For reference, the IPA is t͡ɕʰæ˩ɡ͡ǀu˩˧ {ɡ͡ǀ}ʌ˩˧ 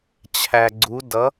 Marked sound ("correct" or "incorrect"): incorrect